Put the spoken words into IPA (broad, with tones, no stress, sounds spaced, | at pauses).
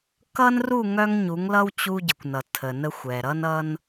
k ʌ˦ n r u˦˨ ŋ œ˦ ŋ ɲ u˨˦ ŋ l ʌ˦ w t͡ɕ u˦ ɟ ə˨ kʷ n ʌ˨ tʰ ə˨ n ə˦ xʷ ɛ˨ ɾ ʌ˦ n ʌ˦ n